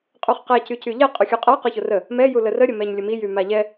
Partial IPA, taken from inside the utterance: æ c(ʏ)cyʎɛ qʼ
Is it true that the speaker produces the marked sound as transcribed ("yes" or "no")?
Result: no